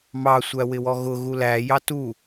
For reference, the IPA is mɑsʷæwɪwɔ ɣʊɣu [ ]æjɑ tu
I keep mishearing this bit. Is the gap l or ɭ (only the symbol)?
l